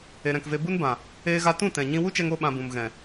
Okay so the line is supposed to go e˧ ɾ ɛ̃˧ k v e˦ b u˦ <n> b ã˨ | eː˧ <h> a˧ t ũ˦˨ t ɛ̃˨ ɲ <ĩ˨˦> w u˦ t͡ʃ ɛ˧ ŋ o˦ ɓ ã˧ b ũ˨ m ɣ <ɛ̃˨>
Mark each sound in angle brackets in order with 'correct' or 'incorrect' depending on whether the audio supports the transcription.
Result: correct, incorrect, incorrect, correct

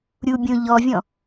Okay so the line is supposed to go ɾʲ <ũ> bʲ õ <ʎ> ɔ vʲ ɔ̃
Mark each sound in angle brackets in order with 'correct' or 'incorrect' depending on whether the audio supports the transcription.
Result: incorrect, correct

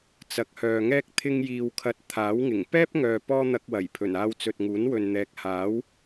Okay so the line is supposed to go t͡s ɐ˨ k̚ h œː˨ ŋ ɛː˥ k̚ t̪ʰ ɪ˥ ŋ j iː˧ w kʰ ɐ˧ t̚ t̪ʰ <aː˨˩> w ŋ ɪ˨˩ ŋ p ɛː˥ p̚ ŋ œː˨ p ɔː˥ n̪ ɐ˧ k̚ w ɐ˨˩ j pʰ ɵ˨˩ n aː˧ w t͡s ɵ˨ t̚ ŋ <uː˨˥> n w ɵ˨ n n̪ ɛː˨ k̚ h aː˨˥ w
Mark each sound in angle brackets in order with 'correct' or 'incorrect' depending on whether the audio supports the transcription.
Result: incorrect, correct

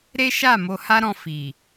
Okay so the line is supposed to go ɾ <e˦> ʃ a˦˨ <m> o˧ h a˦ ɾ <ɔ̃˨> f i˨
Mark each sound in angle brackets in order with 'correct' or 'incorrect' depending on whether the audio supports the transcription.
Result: correct, correct, incorrect

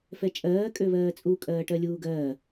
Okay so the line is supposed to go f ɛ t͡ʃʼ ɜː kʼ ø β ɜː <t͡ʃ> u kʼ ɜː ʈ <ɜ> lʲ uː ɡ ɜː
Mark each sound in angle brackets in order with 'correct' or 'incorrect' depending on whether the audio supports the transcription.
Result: incorrect, correct

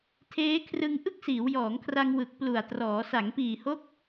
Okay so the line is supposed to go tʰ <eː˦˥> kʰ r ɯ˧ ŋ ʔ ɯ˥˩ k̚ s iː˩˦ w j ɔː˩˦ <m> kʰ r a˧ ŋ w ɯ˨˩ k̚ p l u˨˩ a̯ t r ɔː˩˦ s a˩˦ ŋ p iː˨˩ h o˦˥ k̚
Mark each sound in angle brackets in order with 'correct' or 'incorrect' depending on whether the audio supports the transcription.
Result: correct, incorrect

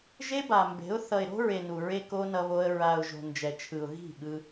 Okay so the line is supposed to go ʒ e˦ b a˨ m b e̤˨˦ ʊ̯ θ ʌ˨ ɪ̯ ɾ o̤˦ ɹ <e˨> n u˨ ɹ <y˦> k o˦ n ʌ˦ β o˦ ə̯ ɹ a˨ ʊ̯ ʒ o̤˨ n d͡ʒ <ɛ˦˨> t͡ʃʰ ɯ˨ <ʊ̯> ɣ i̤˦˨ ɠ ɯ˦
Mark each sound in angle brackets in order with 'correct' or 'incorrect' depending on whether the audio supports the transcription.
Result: correct, incorrect, incorrect, correct

